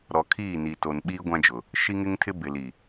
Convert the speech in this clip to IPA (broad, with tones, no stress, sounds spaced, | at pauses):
ɾ ɔ˨ kʰ iː˦˨ n i˨ t o˨ n ɓ iː˦ ɡʷ ã˦ d͡ʒ ʊ˨ | ʃ i˦ ŋ ɪ˦ ŋ tʰ ɪ˦ b ɪ˨ l i˨